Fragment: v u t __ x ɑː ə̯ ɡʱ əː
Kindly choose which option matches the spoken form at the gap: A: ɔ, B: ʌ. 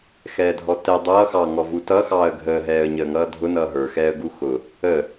B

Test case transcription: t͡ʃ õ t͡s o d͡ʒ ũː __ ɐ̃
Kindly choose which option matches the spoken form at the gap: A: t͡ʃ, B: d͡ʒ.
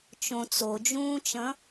A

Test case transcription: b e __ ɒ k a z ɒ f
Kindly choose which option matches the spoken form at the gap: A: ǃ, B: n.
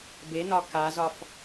B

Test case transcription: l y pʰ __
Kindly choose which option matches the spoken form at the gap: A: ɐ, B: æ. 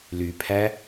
B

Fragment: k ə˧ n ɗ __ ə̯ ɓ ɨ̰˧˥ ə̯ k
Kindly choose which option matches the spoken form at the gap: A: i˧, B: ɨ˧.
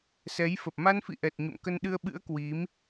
B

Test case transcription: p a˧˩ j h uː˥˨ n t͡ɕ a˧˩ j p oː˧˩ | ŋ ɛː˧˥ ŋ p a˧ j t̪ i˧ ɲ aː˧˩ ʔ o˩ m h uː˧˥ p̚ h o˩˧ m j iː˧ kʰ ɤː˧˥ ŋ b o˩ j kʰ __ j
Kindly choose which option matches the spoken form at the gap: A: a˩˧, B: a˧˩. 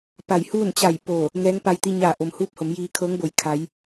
A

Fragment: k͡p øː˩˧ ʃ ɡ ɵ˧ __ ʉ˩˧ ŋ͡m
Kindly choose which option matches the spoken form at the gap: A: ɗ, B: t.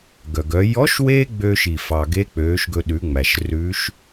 A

